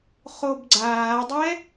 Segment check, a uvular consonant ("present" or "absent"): present